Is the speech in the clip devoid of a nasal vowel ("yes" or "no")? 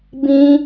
no